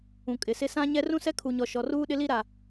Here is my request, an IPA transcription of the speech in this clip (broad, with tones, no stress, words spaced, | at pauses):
ũ˨kʼɪ˨sɪ˦ sã˦ ɲɛ˦ rũ˦sɛ˦kʰu˨ɲɔ˨ ʃɔ˨ruː˦ɗɪ˦li˦ ɾa˨